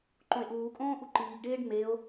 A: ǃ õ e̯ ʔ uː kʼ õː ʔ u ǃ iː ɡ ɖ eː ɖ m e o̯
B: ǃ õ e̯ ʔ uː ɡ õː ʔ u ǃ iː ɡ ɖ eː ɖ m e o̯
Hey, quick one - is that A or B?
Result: A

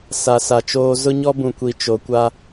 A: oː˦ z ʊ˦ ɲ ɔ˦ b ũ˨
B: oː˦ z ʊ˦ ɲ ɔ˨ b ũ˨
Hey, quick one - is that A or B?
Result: A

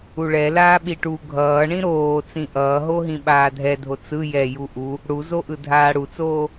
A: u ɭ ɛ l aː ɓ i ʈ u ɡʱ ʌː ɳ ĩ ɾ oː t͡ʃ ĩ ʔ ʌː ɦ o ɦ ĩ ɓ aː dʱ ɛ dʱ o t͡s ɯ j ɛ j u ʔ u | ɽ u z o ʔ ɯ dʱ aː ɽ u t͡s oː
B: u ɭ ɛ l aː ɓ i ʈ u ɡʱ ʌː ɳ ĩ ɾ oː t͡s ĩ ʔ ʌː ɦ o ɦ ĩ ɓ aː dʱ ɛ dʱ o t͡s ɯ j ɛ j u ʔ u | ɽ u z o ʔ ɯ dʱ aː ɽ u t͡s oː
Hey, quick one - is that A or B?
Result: B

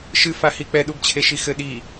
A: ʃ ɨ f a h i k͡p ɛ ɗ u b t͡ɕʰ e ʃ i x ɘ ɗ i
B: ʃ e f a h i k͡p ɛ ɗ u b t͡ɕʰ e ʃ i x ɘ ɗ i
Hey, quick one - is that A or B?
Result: A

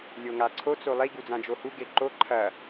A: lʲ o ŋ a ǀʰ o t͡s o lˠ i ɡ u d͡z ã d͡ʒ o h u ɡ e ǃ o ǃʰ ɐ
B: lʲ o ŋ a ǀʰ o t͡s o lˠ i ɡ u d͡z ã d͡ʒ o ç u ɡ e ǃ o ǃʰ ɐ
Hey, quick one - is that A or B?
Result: A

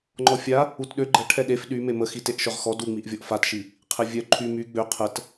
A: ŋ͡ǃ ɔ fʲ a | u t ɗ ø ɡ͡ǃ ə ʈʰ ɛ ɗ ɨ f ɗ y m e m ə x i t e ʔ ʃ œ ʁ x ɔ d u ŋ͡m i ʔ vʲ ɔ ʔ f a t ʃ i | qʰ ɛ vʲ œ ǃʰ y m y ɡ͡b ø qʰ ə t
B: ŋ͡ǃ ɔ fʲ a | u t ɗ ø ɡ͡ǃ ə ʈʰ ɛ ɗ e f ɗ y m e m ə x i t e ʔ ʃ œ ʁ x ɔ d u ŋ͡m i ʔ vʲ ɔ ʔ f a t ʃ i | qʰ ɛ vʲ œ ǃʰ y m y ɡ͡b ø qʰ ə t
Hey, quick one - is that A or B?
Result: B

